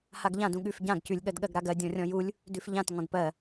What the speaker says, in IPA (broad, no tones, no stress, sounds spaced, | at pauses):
h a ɡ ʎ ã d ũ ɠ ʉ f ɟ ã ɡ c ʉ lʲ ɠ ɜ d ɠ ɜ ɡ ɾ a ɡ ɜ dʲ ɔ̃ rʲ ɔ̃ j u lʲ | d ʉ f ʎ ã t ŋ ɔ̃ d p ɜ